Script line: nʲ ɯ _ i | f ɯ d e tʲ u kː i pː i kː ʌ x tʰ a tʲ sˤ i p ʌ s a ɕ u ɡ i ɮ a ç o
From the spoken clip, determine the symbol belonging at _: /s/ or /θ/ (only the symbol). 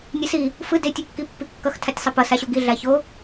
s